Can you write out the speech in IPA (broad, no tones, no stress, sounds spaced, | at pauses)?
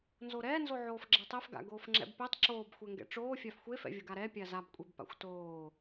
n z o ɾ ɛː n z o ʕ oː f ɡ͡ǁ ɛ tˤ ɛ f ɡ a̰ ɡ oː f ŋ͡ǁ ɛ̰ b p ɛ tˤ ǁ oː b xʷ ɛ ŋ ɡ ɛ̰ ʈ͡ʂ oː fʲ a f xʷ e f ɛ̰ vʲ o ɡ a ɾ ɛ pʲ a z a b kʷʼ e b p a̰ xʷ t oː